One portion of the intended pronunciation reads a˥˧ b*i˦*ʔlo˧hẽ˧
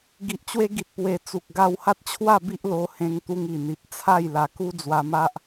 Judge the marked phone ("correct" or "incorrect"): correct